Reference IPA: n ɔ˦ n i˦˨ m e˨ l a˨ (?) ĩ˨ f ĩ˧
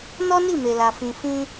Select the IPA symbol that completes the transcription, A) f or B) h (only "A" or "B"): A